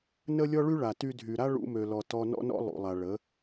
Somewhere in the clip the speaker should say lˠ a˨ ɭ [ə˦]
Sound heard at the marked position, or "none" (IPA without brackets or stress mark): ə˨˦